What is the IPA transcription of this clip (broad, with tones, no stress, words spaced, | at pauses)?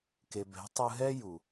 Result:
ke˧ bɛ̤˨˦tˤɯ˧ɦɛ˦ ju˨